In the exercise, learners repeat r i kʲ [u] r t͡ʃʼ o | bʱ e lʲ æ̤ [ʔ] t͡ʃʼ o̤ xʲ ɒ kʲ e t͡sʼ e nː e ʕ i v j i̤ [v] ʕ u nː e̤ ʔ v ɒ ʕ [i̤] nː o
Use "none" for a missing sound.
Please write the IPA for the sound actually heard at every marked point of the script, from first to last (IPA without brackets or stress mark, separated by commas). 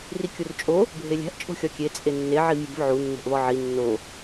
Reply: u, ʔ, v, i